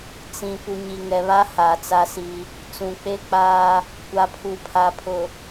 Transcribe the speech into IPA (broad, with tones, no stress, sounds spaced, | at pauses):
t͡s ĩ˨ p u˨ ɲ i˨ ŋ ɛ˨ β a˦ h aː˨ t͡s a˦ s i˦ | t͡s ũ˨ k͡p e˦ k͡p aː˦ | kʷ a˨ pʰ u˨ pʰ a˨ pʰ ʊ˨